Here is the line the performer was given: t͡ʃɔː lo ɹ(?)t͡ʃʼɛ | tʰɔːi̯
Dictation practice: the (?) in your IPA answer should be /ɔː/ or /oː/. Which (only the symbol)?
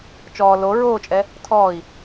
oː